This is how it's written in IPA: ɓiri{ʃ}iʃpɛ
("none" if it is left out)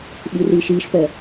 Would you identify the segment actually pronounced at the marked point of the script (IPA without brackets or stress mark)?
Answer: ʃ